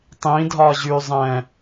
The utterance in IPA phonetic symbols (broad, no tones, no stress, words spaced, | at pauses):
tˤĩdʱɒ ʑyzˤɛ̃